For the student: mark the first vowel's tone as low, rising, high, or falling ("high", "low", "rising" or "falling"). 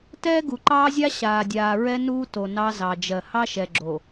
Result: high